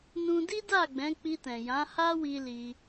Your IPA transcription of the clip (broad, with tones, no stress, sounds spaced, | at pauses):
n ũ˧ d i˦ d a˦˨ ɡ͡b ɛ̃˨˦ k͡p i˧ t ɛ̃˨ j ã˨˦ h a˦ w i˧ l i˧